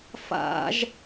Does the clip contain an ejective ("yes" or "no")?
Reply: no